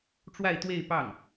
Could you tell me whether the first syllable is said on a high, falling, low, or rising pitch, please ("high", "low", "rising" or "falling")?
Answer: falling